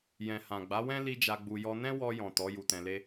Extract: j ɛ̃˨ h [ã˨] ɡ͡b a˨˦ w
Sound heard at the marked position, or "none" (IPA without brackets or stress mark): ã˨